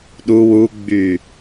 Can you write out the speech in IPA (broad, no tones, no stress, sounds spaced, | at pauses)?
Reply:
ɗ u w u ɡ͡b y